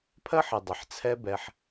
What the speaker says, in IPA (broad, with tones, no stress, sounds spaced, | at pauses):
pʰ ɜ˦ ħ ɪ˨ dˤ ɪ˨ ħ t͡sʰ ɛ˦ b ɛ˧ ħ